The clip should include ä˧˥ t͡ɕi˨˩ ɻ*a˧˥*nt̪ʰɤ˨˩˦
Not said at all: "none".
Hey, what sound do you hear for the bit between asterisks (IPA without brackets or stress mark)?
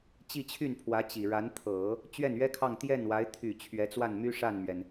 a˧˥